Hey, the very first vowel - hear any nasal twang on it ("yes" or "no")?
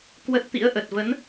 no